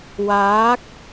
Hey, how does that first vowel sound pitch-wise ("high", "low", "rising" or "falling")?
rising